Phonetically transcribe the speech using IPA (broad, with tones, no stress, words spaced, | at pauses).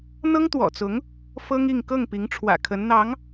n̪ɤ˥ŋt̪wɔ̰˨˩t͡sʊ˧˥ŋ | fɤ˥ŋi˥˧ŋ kɤ˥˩ŋpi˧˥ŋʈ͡ʂʰwä̰˨˩ kʰə˧˥nn̪ɑ˧˥ŋ